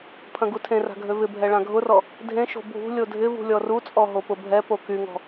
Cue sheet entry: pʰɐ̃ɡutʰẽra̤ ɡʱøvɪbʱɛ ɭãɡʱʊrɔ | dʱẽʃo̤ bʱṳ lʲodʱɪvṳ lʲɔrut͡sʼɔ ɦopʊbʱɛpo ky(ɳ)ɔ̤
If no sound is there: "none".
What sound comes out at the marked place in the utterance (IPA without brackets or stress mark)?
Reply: ŋ